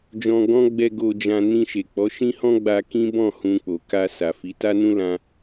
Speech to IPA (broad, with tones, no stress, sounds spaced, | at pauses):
d͡ʒ ɔ̃˧ ɡ ɔ̃˦ ɡ͡b ɛ˧ ɡ o˧ d͡ʒ ã˧ n ĩ˧ ʃ e˨ k͡p ɔ˨˦ ʃ ĩ˦ h ɔ̃˦ ɡ͡b a˧ k ĩ˦ b ɔ̃˦˨ h ũ˧ k͡p o˨ k a˧ s a˨ f i˨˦ t a˦ n ũ˦ l ã˦